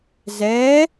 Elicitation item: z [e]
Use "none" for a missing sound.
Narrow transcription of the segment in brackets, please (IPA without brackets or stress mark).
ɛ